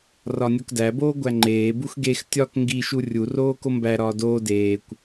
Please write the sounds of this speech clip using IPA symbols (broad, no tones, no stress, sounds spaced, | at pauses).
r ɒ nʲ o k d æ b oː ɡʷ æ ŋ͡ǃ eː b u x ɡ e x tʲ ɒ k ŋ ɡ i ʃ u rʲ u r oː k o m b æ ɾ ɒː d oː d eː kʷ